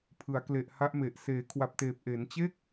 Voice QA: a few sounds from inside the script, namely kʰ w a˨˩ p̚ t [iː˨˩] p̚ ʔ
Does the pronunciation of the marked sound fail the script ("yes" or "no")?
yes